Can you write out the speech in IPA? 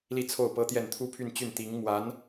li˥˧t͡sʰo˥˩ʊ̯pɤ˥t̪jɛ˥˩n t̪ʰu˥pʰy˥˧nt͡ɕy˥˩n t̪i˧˥ŋ mwa˧˥n

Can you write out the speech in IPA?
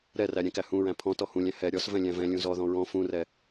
ɾɛræ ɾʲɛ̃kæhũɹæ̃ pʰɔ̃ tɔhũlʲæ̃ hɛ ɾʲɔs vɛ̃lʲæ̃vɛ̃lʲũ zɔðɔ̃ ɹɔ̃ fũrɛ

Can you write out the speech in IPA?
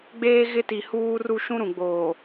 ɡ͡beː˦ɣɪ˦ti˨ huː˦ru˦ ʃũ˦ɾũ˨ɡ͡boː˨

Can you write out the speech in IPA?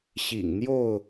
ɕḭ˨˩ŋn̪jo˥˨ʊ̯

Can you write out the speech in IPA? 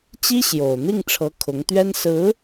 t͡ɕi˥ɕjo˨˩ʊ̯ n̪i˥˩ŋʈ͡ʂʰɤ˧˥ kʰʊ˧˥ŋt̪ɥɛ˥n sɹ̩˧˥

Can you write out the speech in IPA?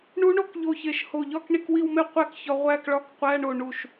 ɳu˦˥ɳo˦˥kʎo˧˩ çe˧˩ʃho˧˩ʎɒ˥˧k ɳi˥˧kwi˥˧wme˥˧ qʷæ˦˥kçɒ˧ ʁʷæ˥˧kɭɒ˧˥˧kqʷæ˧˥˧ɳo˧˩ ɳu˧˩ʃ

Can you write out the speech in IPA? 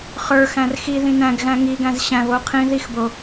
χə˞xæ̃r xiðĩ næ̃ɡɣæ̃ ŋiɡæ̃z ɕæ̃βo qʰĩ ðixbo

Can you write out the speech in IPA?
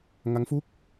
ŋa˦˥ŋfu˥˩k̚

